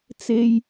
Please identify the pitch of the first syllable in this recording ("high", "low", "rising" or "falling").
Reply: high